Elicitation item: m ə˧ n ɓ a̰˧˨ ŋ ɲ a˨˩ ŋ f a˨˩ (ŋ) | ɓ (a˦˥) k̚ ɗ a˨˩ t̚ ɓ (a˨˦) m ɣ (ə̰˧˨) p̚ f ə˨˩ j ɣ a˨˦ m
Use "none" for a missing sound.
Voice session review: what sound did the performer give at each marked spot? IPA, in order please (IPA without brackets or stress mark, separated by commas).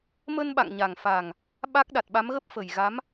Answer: ŋ, a˦˥, a˨˦, ə˦˥